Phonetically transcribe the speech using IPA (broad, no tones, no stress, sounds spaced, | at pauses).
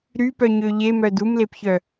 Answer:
ɾ y p œ ɲ ø ʎ e m œ d u m l e p ç œ